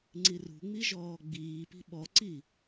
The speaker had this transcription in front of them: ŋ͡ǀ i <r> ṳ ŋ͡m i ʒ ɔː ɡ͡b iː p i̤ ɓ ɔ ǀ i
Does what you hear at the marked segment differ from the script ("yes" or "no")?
no